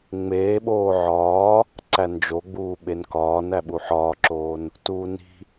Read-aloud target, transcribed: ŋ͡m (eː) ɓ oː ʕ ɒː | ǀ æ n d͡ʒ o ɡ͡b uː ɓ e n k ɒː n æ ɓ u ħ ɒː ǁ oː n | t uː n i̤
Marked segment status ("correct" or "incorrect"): correct